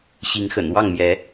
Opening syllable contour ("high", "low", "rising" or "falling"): rising